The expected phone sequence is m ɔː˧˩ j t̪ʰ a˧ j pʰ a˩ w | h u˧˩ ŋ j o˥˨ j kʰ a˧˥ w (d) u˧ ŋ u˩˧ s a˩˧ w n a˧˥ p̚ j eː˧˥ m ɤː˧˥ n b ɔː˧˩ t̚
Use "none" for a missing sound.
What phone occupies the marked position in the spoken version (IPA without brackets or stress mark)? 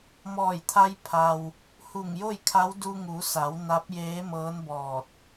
d